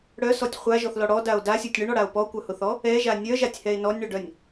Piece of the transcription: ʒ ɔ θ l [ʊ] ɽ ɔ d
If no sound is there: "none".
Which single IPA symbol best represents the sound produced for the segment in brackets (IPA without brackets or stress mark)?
ɔ